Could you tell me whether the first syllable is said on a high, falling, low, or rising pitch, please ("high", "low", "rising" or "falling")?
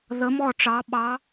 rising